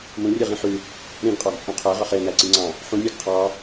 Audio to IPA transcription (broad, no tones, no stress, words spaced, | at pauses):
mũrʲɯʁĩ ħy | ɾĩɡqʼɑɡt͡sʼũ qʰæʁɑχ enæǀiŋ͡ǀɑ̃ | ħũnʲɑɡ qʰɑ